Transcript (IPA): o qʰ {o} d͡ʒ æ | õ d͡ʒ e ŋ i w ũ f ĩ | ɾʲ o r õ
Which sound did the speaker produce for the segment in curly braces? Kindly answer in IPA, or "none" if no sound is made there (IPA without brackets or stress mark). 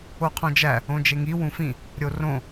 õ